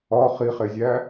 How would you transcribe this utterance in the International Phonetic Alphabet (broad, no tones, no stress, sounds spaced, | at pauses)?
ɒ χ i χ e zʲ æ